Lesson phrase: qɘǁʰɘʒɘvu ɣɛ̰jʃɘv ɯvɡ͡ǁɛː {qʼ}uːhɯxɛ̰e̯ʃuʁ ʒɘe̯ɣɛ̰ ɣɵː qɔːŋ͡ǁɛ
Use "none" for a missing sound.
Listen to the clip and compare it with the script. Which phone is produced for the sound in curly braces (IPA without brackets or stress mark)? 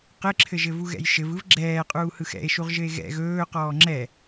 qʼ